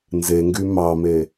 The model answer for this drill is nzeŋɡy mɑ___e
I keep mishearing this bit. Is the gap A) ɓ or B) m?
B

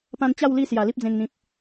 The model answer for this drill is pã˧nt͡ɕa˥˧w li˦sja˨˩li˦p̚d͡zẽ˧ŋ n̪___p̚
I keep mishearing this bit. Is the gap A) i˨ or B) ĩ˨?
B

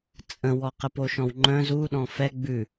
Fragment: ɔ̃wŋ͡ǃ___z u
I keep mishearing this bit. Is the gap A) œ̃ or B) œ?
A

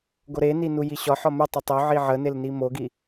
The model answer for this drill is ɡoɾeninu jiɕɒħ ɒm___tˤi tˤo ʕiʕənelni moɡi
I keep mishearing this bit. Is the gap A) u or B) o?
A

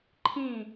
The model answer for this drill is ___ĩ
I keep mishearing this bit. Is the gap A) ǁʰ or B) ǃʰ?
B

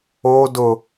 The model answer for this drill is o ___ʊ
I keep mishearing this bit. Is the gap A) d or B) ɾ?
A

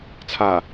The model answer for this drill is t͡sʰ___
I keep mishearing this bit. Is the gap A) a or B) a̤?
A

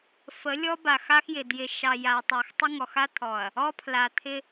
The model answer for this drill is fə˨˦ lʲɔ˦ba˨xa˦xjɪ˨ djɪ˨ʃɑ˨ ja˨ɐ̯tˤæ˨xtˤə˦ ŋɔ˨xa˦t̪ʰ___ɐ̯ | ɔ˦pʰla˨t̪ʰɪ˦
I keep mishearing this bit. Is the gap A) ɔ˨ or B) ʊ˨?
A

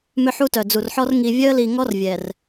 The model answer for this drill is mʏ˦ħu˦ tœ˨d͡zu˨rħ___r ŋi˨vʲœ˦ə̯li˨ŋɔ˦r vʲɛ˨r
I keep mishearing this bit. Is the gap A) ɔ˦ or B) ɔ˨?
A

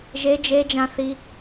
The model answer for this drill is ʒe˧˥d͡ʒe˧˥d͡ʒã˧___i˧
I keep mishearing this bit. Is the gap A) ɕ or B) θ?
B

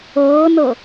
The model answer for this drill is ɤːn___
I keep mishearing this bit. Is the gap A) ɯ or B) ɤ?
B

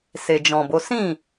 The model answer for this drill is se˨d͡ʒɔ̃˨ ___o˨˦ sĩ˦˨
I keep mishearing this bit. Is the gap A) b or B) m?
A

